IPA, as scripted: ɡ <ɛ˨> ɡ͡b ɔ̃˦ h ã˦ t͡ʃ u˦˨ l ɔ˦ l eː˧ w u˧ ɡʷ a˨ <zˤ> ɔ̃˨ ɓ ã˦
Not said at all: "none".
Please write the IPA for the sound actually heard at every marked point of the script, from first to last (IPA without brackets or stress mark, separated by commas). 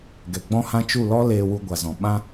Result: ɛ˨, z